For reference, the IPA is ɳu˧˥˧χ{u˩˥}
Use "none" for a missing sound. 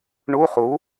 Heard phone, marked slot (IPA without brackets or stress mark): u˩˥